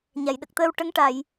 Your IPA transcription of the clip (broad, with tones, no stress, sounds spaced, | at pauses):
ɲ a˨˩˨ j ɗ ə˨˩ k̚ t̪ əː˧ w ʈ ə˧˥ ŋ ʈ a˨˩˨ j